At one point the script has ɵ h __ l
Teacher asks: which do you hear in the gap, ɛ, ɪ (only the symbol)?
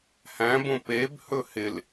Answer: ɪ